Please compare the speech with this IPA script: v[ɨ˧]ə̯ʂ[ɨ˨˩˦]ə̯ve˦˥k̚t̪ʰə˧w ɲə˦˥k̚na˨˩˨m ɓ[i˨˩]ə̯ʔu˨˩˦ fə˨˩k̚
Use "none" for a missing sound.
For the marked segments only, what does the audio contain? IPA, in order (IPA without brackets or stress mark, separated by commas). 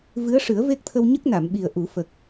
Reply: ɨ˧˥, ɨ˨˩˦, i˨˩